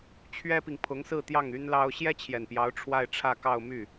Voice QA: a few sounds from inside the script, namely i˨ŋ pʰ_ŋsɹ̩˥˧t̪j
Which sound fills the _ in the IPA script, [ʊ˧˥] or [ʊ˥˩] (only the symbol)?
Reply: ʊ˧˥